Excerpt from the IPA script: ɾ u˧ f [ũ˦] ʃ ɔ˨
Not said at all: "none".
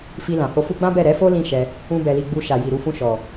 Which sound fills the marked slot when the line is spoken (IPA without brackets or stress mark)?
ũ˧